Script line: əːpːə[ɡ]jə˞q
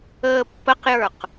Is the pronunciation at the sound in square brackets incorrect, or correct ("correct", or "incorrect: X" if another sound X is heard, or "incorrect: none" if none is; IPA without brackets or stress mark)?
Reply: incorrect: q